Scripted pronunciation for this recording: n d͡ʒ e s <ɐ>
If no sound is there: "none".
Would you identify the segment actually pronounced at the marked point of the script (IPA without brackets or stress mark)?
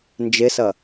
ɐ